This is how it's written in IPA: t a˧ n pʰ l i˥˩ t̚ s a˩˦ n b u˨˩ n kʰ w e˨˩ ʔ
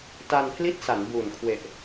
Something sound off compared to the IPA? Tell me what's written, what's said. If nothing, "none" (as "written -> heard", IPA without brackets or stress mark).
none